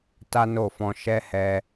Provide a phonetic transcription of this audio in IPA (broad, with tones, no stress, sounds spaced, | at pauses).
t a˦ n o˦˨ f ɔ̃˧ ʃ ɛ˦ h ɛ˧